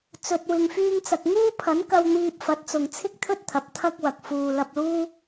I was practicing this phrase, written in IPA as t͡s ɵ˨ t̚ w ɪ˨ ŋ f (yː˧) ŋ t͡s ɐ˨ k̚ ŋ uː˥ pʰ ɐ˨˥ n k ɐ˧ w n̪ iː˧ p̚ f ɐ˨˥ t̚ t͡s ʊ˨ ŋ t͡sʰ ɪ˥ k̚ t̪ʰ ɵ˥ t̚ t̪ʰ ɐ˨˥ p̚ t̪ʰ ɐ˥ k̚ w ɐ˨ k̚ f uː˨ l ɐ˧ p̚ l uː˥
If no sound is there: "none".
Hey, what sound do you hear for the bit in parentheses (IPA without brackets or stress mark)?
yː˧